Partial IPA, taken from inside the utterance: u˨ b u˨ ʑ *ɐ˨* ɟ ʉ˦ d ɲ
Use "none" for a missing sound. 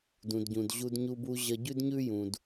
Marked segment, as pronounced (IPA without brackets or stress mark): ɐ˨